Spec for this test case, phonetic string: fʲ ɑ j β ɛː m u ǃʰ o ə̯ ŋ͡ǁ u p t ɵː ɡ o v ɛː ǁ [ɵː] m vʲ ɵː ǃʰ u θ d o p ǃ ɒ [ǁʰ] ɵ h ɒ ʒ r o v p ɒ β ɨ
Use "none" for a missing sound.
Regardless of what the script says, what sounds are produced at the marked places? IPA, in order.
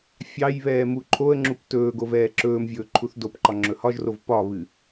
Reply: ɵː, ŋ͡ǁ

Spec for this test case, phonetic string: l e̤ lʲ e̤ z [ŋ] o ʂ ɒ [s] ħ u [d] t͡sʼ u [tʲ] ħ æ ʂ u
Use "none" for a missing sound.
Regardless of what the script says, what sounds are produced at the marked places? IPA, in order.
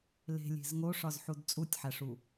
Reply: ŋ, z, d, tʲ

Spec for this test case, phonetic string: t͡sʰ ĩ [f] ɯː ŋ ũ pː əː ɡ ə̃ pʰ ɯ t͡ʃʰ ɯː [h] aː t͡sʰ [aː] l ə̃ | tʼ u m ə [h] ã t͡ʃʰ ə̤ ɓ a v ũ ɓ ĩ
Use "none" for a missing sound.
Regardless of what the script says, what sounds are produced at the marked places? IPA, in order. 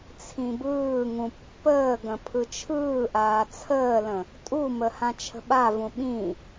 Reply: b, ʔ, əː, h

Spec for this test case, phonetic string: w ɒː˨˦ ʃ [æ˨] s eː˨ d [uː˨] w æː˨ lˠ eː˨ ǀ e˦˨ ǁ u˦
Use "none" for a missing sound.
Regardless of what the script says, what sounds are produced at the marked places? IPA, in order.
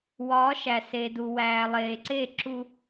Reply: æ˨, u˨

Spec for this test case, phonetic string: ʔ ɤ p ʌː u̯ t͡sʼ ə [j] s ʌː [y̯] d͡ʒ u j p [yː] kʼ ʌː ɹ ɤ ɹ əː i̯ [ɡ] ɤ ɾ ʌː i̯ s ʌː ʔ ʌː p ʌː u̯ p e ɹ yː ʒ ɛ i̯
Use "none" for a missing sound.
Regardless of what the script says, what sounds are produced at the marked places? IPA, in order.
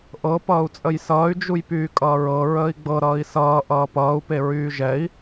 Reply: j, y̯, yː, ɡ͡b

